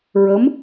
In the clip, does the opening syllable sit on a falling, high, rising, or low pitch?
rising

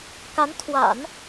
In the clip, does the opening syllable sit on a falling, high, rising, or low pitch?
rising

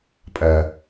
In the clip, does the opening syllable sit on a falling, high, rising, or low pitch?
low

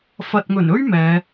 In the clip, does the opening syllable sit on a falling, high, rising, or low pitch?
low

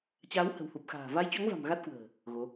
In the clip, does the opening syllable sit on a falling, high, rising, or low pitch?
rising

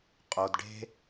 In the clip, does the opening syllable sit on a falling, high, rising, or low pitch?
low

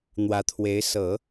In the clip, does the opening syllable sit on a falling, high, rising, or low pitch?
rising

